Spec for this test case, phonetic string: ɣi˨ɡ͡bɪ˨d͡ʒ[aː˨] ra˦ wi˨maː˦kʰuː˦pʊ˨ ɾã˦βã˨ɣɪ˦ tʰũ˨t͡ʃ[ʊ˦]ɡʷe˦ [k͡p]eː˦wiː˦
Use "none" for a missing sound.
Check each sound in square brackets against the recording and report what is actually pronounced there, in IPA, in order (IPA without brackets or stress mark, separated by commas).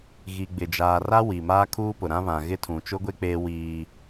aː˨, ʊ˦, k͡p